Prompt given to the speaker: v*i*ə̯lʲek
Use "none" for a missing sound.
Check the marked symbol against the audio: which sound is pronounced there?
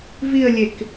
i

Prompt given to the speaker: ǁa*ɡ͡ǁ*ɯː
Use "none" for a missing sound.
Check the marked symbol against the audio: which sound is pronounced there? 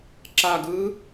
ɡ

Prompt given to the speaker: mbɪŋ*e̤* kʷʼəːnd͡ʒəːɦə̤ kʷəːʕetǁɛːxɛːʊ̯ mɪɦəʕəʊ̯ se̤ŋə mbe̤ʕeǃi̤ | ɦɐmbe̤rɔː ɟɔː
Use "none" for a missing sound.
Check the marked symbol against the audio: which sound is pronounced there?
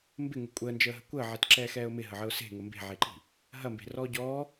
e̤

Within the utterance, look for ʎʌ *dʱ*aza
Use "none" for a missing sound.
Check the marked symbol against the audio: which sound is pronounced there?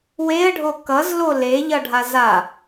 ɖʱ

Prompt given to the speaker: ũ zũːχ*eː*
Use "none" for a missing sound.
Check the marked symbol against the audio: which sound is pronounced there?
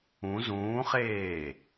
eː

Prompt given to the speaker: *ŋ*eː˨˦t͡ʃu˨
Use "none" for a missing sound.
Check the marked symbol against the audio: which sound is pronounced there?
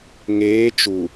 ŋ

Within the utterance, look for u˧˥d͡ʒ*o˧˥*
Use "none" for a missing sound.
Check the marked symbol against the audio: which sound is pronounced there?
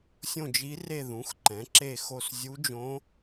õ˧˥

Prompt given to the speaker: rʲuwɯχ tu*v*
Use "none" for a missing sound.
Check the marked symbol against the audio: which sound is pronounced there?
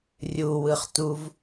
v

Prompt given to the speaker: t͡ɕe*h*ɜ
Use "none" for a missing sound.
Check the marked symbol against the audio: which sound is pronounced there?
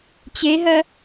ɦ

